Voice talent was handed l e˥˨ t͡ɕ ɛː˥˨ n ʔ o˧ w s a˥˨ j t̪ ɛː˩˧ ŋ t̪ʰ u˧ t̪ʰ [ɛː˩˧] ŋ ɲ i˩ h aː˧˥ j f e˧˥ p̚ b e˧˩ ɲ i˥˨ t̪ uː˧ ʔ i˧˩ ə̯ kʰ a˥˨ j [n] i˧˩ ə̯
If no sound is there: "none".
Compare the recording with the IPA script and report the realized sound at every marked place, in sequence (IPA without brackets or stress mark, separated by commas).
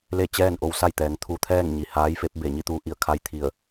ɛː˥˨, t̪ʰ